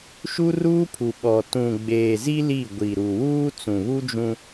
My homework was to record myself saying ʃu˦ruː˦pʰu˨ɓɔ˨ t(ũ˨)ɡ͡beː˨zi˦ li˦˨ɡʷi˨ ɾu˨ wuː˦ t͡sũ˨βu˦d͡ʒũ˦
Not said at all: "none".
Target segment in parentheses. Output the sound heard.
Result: ũ˨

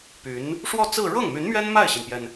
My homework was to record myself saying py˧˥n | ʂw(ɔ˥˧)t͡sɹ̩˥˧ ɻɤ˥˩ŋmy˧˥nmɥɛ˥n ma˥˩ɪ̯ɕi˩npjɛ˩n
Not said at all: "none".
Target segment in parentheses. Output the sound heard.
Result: ɔ˥˧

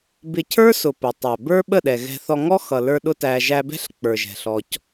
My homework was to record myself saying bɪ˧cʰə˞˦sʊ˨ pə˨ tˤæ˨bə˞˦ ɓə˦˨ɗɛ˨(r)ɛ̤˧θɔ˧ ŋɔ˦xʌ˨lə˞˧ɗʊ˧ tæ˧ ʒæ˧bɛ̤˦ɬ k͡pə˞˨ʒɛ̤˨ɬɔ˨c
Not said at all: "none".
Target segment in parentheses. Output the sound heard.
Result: ɣ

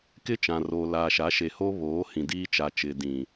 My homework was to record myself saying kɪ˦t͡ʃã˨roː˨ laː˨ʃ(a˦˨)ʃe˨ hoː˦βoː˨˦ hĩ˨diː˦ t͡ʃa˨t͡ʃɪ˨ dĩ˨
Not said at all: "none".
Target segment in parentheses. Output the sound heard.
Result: a˨˦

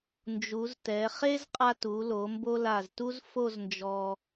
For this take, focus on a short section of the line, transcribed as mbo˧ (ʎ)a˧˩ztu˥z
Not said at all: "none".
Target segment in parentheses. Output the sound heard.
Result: l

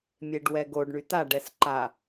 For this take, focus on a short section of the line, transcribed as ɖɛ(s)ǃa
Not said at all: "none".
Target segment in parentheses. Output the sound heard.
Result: s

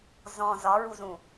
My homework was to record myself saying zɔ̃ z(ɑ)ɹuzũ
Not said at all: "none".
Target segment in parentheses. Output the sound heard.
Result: ɒ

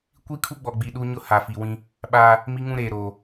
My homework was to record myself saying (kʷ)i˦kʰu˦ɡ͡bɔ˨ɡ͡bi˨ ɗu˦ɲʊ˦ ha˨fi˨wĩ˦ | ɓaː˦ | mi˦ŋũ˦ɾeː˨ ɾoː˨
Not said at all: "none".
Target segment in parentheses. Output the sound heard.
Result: kʷ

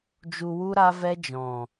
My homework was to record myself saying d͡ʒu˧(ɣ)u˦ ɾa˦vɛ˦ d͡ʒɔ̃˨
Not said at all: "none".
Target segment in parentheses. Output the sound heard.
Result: w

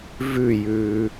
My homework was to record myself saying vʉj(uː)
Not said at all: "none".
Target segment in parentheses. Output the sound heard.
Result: ʉː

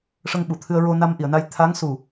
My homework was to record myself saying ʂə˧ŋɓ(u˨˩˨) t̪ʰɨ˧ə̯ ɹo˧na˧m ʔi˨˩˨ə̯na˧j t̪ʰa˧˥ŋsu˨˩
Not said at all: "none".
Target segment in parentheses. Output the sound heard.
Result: u˨˩˨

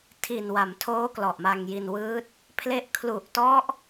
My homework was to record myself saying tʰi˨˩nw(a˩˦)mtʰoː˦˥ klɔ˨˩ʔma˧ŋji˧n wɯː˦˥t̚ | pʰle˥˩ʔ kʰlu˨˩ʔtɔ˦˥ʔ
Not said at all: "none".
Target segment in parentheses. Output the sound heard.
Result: a˩˦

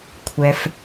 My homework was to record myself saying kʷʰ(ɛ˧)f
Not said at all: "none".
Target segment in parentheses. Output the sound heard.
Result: ɛ˩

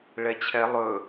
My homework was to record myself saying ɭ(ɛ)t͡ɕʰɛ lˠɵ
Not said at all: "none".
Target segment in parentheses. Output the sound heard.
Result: ɛ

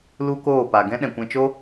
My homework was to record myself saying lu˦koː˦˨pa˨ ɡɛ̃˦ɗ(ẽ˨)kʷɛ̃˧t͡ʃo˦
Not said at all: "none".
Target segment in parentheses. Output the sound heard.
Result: ɛ̃˨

